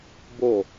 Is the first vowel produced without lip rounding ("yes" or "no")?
no